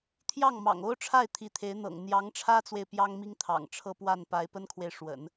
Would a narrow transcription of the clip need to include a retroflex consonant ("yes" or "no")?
yes